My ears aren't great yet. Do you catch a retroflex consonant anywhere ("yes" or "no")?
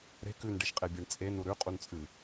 yes